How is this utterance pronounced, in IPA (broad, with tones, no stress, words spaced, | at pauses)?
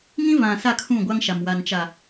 ŋĩ˦vã˨ sa˦˨kʰũ˦˨ɡʷa˦ŋʃa˨m wa˨nt͡ʃa˨